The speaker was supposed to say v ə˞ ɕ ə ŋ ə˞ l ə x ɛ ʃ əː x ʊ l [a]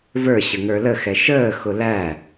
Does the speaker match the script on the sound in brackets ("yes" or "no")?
no